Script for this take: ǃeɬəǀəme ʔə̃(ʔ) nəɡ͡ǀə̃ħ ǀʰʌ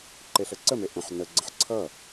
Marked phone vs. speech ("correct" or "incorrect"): incorrect